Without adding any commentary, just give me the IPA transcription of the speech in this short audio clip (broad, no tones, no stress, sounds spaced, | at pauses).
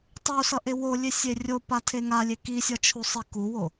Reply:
tˤ u s ʌ ʔ e w o lʲ e sʲ e rʲ o p a tʰ e ŋ a lʲ e k i sʲ ʌ t͡ʃʰ u sˤ i k u w o